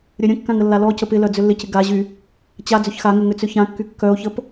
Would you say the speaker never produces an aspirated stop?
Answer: yes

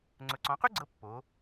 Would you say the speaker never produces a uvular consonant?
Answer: no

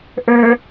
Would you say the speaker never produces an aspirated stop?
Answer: yes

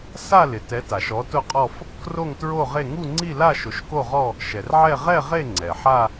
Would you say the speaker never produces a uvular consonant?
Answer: no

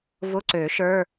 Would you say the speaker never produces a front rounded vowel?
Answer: no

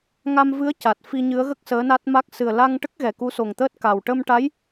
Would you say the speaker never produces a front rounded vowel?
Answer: yes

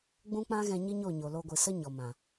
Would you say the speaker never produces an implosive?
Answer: yes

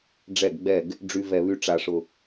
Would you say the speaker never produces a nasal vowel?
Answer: yes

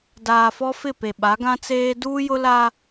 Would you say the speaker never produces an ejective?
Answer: yes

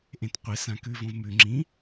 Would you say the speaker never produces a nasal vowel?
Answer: no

